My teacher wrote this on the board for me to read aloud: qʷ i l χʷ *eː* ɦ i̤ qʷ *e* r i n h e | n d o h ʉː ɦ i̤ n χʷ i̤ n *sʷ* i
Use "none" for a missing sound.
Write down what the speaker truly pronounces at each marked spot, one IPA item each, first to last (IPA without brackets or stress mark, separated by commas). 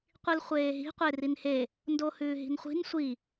eː, e, sʷ